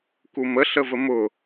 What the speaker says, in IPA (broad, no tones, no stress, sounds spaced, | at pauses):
k u m ə ɬ ə v ə m ʊ